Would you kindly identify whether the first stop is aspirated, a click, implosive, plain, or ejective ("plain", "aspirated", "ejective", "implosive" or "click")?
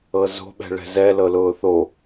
implosive